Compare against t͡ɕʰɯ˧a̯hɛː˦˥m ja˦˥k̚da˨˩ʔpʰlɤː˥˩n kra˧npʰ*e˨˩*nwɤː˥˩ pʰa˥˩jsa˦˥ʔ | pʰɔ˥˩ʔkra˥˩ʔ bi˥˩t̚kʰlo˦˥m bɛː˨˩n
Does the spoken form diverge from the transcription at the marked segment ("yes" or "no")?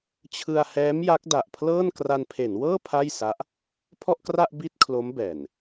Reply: yes